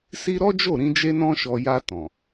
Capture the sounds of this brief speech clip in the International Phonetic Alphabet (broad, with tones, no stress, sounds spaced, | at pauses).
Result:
s i˦ ɾ ɔ˦ d͡ʒ o˦˨ ɾ ĩ˧ d͡ʒ e˦ n ɔ̃˦ ʃ ɔ˧ j a˧ t ɔ̃˨